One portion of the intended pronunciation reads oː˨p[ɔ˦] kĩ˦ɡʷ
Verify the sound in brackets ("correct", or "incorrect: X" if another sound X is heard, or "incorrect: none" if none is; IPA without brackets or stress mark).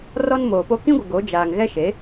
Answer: incorrect: o˦